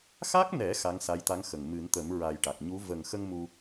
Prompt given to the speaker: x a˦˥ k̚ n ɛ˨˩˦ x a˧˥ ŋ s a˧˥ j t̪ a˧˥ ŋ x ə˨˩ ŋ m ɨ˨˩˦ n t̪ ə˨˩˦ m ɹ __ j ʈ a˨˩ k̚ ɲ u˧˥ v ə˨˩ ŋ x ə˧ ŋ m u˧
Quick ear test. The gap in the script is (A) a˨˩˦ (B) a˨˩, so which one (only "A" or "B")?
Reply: B